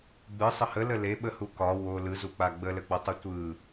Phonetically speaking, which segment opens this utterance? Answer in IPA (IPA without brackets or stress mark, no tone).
ɡ͡b